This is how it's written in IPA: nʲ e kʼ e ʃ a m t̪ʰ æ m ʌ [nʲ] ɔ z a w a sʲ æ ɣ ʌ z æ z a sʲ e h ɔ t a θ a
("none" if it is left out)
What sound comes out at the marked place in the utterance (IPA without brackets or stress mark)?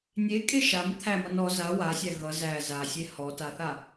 n